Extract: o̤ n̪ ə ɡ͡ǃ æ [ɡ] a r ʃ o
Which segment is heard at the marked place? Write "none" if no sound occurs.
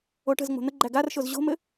ɡ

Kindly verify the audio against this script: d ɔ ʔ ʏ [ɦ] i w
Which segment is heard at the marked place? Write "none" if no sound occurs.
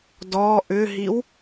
ɦ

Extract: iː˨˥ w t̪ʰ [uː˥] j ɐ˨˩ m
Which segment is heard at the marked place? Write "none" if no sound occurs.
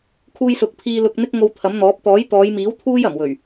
uː˥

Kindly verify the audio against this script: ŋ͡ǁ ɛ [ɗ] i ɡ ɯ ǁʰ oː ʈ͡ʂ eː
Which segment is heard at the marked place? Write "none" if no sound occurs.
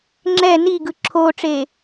n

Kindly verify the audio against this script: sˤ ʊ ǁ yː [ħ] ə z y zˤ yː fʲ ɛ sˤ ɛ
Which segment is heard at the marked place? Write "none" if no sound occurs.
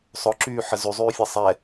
ħ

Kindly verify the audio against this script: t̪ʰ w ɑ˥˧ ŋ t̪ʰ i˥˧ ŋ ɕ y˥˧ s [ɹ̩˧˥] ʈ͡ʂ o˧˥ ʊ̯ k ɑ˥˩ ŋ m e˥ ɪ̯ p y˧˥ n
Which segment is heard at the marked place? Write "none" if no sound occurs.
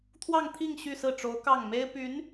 ɹ̩˥˩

